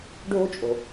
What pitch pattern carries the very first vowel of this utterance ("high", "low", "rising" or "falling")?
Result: high